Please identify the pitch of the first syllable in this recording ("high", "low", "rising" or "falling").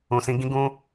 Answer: low